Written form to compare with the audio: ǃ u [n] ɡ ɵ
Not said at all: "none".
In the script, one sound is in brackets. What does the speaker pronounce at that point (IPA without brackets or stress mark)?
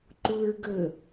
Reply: ɹ